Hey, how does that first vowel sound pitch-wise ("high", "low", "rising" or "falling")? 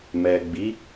low